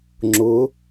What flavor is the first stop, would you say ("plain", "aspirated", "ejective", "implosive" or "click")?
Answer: click